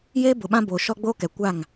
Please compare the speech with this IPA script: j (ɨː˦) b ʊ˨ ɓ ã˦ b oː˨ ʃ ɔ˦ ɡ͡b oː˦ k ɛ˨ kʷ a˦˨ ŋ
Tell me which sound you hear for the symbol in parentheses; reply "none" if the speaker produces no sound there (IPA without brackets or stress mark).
eː˦